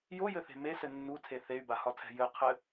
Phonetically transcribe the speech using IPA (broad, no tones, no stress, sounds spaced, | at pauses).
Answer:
j o j ɘ θ e̤ m e s ɘ nː u tʰ e θ e y̯ b a h ɒ tʰ ɛ̤ j ɘ qʰ ɘ